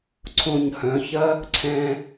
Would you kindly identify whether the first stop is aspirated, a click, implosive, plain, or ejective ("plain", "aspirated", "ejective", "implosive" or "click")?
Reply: click